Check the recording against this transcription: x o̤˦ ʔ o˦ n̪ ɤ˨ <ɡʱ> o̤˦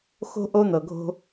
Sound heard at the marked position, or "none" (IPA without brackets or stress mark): ɡʱ